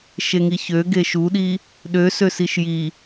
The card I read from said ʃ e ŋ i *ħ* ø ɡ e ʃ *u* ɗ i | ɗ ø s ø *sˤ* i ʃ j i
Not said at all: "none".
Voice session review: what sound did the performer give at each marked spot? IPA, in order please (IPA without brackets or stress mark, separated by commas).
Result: ç, u, s